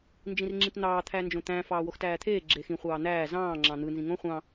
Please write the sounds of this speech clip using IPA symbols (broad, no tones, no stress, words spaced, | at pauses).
nd͡ʒĩrŋ͡ǁĩtn̪ɑː t̪ʰænd͡ʒõt̪æ̃ fɑːwoxtæːt̪ʰeː ɡ͡ǁexĩ χʷɑːn̪æː zɑ̃ː ŋ͡ǁɑ̃n̪ɯ nzĩŋõ χʷɑ̃